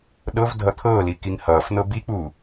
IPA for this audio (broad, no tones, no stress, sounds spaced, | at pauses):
ɗ ɤ v dʱ ʌ t̪ʰ ɤː l i k i ŋ h ʌː f n̪ ɤ b i k͡p uː